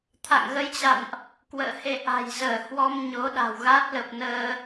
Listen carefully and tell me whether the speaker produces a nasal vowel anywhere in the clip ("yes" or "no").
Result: no